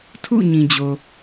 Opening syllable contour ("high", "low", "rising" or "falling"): falling